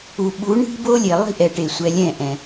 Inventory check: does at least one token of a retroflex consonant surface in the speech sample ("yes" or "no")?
yes